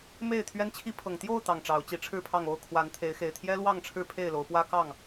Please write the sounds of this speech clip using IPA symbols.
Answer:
m e˥˨ ɪ̯ t̪ʰ ɥ ɛ˦ n t͡ɕʰ i˦ pʰ ɤ˨˩ ŋ t̪ j o˥˨ ʊ̯ t̪ ɑ˨˩ ŋ ʈ͡ʂ ɑ˨˦ ʊ̯ t͡ɕ i˨˦ ʈ͡ʂʰ ɻ̩˥˨ pʰ ɑ˥˨ ŋ o˥˨ ʊ̯ kʰ w a˨˦ n t̪ʰ e˨˦ ɪ̯ x e˨˩ ɪ̯ t̪ʰ j ɛ˦ l w ɑ˥˨ ŋ ʈ͡ʂʰ ɻ̩˥˨ pʰ e˥˨ ɪ̯ l o˨˦ ʊ̯ p w ä˦ k ɑ˥˨ ŋ

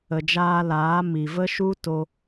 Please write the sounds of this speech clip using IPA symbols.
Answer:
ə˨ d͡ʒ aː˧ l aː˨˦ m i˨ v ə˦ ʃ u˦ t o˧

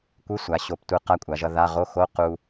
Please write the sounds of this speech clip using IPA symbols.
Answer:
kʷ ɯ˧˥˧ sʷ a˩˧ ɕ o˩˧ p tʷ ɯ˩˧ q a˧˥˧ kʷʼ a˩˧ ʒ ʌ˧ ð a˧˥˧ ʁ o˧˥˧ x o˧˥˧ q u˧

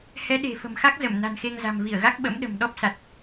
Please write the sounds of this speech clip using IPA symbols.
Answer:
h ɛ˨˦ ɗ e̤˨˩ f ə̤˨˩ m x a˦˥ k̚ z ə˧˩ m n a̤˨˩ n x e˧ ŋ z a̤˨˩ m v i˧˩ ə̯ ɣ a˦˥ k̚ ɓ ə̰˧˥ m ɗ ə̤˨˩ m ɗ ɔ˦˥ p̚ s a˨˩ t̚

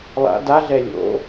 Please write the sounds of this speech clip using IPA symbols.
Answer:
lˠ a̰ d a ɮ ɛ lʲ o̰

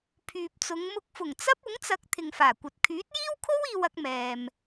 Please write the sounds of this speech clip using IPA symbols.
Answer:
pʰ yː˨ p̚ t͡s ʊ˨˧ ŋ m ʊ˧ k̚ f ʊ˨˩ ŋ t͡s ɐ˥ p̚ ʊ˨˥ ŋ t͡s ɐ˨˥ k̚ t̪ʰ ɪ˨ ŋ f aː˨˩ kʷ ɐ˨ t̚ kʰ yː˨˥ t̚ j iː˥ w kʰ o˥ w iː˧ w ɐ˧ k̚ m ɛː˨ m

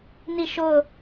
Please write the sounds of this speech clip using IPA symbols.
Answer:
n i˦˨ ʃ o˦˨ ʊ̯

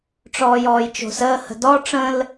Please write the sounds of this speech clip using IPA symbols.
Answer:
ʈ͡ʂ ɔː j ɔː j t͡ʃ o̤ s əː h ə̤ d ɔ ʈ͡ʂ ə̃ l

